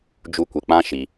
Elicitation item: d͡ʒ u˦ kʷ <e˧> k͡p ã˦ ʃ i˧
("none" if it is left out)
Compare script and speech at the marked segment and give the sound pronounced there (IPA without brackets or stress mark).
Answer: e˧